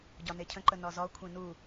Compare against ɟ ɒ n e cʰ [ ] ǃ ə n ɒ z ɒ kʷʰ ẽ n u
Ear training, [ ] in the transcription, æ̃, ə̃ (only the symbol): ə̃